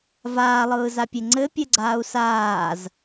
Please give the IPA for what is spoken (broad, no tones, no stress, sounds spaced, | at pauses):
v aː lˠ ɯː z a pʲ e ŋ͡ǀ ɘ pʲ ɘ ɡ͡ǀ aː u̯ s aː z